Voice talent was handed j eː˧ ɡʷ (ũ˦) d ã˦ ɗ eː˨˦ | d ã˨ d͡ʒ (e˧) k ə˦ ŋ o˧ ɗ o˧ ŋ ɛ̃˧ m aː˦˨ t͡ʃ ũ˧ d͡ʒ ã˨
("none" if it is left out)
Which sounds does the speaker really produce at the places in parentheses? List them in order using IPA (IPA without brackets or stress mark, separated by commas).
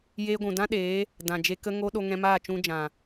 ũ˨, e˧